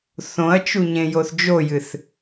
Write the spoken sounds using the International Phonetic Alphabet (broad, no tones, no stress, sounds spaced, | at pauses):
θ õ ɐ̯ t͡ʃ u ɲ ẽ j o θ d͡ʒ o j ɨ θ